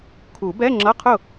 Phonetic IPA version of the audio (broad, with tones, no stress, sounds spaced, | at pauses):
kʰ u˨˩˦ b ɛ˧˥˧ ŋ͡ǁ ʌ˧˥˧ qʰ ʊ˥˩